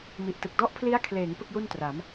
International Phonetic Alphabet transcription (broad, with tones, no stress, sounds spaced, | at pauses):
m i˨˩ ʔ t ɯ˨˩ k̚ d ɔ˦˥ ʔ pʰ l i˦˥ a̯ kʰ l eː˩˦ ŋ p ɯ˥˩ k̚ j u˥˩ n t r a˩˦ m